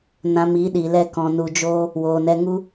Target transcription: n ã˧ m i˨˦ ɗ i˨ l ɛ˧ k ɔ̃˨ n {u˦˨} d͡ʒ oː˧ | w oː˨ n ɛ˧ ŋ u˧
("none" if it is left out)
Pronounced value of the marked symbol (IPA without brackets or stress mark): u˨